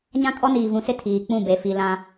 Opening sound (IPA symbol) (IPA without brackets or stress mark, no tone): ɲ